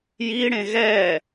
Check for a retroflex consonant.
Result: present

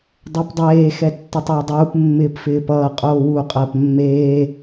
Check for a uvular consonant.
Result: present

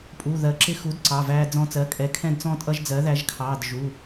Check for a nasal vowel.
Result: present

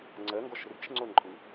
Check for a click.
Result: present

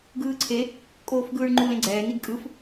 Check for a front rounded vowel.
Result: absent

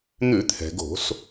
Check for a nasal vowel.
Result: absent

